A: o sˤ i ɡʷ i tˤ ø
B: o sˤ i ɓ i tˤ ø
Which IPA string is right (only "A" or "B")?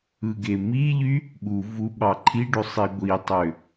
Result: A